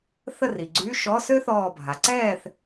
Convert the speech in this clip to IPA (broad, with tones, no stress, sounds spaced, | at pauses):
θ ə˥˨ r i˩ ɡ͡ǀ y˧˥˧ ʃ ɔ˧˥˧ s ø˥ θ ɔː˧˩ bʱ a˩ ǀ ɛː˥˨ θ